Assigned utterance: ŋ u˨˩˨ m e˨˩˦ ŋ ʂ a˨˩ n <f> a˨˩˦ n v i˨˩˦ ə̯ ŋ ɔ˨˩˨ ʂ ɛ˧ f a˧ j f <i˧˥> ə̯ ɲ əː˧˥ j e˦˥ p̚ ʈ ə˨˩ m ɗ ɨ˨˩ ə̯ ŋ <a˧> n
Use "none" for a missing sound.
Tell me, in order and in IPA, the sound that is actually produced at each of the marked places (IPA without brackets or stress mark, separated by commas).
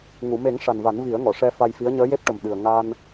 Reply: v, i˧˥, a˧